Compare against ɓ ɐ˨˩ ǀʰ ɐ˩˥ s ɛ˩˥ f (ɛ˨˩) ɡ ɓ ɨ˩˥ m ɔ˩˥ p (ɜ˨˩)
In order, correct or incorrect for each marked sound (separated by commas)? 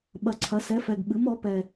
correct, incorrect